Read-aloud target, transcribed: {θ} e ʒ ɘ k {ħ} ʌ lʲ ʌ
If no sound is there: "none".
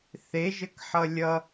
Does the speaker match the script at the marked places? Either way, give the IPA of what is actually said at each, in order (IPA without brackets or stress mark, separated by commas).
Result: θ, ħ